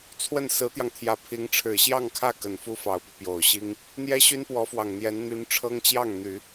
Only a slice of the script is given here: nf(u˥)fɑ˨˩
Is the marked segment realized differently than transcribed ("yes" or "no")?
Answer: no